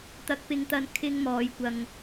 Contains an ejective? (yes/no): no